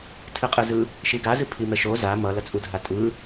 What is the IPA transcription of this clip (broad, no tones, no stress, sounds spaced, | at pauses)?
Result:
tʰ ɨ qʼ ɯ z ɯ | ʃ i ɡ a z ɨ pʰ i m ɛ ʃ o z a m ʌ l ʌ t͡sʼ u dʱ a tʼ ɯ